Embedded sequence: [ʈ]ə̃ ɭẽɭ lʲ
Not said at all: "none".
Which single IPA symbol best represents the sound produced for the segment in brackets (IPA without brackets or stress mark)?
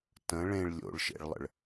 t